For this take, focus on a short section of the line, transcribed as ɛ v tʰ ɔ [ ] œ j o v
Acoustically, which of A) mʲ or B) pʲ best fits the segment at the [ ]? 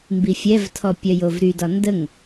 B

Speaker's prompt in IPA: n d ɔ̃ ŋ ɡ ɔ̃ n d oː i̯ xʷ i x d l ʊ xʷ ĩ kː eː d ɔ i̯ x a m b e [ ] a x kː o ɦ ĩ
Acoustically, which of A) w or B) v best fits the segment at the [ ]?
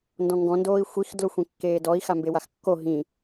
A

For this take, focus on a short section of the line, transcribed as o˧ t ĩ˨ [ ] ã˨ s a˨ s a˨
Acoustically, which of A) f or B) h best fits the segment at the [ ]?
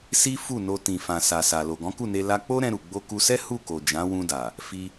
A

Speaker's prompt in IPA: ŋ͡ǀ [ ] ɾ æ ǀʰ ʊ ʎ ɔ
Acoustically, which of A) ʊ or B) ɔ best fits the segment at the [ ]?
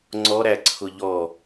B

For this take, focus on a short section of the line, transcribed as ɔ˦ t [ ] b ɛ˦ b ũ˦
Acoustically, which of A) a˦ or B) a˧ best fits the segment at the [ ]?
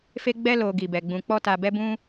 B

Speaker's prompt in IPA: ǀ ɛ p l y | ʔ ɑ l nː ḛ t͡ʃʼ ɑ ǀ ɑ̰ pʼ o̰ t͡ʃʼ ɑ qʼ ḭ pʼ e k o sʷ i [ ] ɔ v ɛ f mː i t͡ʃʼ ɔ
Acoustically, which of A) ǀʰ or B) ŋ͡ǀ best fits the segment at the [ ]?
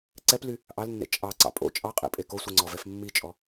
B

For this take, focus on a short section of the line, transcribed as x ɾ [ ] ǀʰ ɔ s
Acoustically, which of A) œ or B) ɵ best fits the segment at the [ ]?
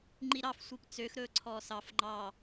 B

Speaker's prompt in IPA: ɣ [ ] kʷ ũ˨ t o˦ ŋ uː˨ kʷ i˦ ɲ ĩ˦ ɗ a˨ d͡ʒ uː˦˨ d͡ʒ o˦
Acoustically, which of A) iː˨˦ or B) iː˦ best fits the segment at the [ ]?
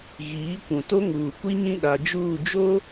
A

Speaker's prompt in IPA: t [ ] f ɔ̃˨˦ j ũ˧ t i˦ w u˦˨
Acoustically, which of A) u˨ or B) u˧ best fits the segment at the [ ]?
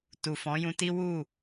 A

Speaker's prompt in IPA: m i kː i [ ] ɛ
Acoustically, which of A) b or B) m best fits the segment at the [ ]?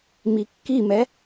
B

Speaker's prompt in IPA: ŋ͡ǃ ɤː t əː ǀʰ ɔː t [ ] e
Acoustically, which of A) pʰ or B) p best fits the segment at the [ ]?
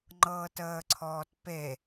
B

